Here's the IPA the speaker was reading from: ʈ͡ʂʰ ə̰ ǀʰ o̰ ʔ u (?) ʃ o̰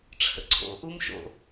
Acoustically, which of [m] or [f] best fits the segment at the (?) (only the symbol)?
m